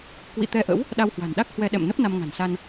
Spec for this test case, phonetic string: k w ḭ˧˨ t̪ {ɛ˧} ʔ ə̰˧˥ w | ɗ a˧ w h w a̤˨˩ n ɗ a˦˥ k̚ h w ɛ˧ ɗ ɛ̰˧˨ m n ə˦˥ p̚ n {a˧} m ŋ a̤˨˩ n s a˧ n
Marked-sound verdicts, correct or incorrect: correct, correct

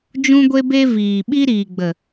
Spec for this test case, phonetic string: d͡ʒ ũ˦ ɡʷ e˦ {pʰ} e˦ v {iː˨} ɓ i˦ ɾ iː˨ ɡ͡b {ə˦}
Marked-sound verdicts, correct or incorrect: incorrect, correct, incorrect

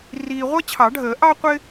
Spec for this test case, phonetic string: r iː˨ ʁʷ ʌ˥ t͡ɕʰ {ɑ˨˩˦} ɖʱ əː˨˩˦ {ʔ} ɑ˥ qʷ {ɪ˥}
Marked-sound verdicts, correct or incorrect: correct, correct, correct

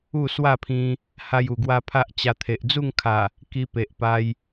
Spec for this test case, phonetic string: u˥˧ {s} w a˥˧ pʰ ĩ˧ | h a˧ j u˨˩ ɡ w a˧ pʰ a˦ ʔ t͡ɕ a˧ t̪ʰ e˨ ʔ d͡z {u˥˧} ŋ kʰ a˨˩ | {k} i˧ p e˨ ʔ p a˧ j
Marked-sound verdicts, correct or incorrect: correct, correct, correct

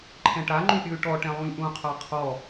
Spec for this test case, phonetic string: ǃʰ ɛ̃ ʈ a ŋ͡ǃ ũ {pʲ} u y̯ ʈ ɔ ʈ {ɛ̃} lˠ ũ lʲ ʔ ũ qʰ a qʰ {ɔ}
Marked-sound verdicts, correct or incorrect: correct, correct, correct

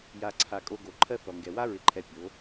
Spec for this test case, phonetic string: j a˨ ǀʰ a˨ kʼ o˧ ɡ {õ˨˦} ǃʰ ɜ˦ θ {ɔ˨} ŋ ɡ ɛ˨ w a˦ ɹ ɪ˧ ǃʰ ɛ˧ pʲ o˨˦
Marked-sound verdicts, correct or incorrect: incorrect, correct

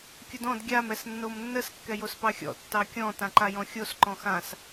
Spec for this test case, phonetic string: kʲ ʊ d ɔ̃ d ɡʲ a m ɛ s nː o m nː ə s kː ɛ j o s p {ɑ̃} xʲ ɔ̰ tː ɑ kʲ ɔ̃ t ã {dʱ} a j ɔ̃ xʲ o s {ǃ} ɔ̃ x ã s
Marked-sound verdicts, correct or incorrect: incorrect, incorrect, correct

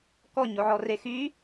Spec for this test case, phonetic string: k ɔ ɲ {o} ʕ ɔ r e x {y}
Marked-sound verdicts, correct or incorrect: correct, correct

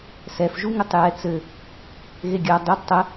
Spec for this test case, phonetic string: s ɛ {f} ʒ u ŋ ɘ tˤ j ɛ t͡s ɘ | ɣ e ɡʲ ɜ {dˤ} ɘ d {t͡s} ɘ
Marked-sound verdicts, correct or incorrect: correct, correct, incorrect

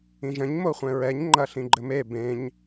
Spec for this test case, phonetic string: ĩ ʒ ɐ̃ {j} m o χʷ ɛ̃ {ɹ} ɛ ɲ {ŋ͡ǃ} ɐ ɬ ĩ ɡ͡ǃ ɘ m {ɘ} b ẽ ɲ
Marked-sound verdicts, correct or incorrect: incorrect, correct, correct, incorrect

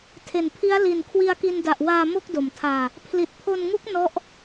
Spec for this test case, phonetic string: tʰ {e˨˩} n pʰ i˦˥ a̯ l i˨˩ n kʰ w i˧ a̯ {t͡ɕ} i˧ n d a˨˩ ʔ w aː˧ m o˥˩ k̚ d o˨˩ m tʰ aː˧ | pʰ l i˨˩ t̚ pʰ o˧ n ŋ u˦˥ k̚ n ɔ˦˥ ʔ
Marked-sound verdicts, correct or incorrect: correct, incorrect

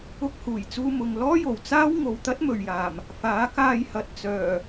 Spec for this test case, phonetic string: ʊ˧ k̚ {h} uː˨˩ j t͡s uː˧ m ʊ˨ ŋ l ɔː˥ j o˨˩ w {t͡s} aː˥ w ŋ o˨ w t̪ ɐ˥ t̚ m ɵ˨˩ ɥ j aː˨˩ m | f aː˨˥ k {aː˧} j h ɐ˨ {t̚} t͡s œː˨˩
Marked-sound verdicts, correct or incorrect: correct, correct, correct, correct

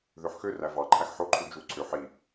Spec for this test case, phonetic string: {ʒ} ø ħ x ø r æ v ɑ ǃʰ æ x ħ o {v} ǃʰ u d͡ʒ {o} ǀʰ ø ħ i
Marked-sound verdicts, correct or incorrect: incorrect, incorrect, incorrect

